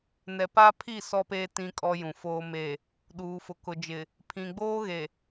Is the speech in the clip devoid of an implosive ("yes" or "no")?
no